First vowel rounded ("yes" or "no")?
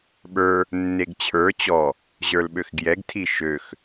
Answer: no